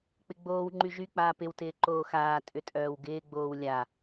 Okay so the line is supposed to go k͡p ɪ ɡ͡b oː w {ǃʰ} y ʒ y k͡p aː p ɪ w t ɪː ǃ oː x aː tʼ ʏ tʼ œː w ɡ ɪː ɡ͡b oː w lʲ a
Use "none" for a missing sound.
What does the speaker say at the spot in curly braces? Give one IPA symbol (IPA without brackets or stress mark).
ŋ͡ǃ